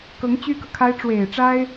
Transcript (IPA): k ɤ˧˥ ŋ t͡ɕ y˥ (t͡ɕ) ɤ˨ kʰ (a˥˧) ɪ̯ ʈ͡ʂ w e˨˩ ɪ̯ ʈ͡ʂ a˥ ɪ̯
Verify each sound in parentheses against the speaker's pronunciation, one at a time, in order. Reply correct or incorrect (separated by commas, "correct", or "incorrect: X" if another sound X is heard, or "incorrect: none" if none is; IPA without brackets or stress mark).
incorrect: k, incorrect: a˥